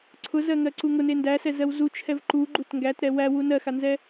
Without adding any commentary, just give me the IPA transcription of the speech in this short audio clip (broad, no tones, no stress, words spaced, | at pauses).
ǀʰʊzɜŋɜǀu ŋʊne ndæsɛzɜw zut͡ʃʰɛv ǃuɡ͡ǃut ŋɡætɾɛ wæwu nɜxanzɛ